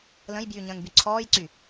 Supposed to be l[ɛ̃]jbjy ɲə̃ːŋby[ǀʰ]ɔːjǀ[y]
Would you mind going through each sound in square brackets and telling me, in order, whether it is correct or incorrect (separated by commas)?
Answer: incorrect, correct, correct